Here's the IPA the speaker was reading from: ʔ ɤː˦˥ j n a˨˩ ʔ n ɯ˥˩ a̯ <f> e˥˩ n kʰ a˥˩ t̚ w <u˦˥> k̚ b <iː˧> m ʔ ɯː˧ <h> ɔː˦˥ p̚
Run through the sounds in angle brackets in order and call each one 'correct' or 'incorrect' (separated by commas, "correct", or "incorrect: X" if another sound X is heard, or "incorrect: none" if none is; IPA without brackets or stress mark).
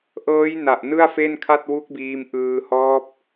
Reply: correct, correct, correct, correct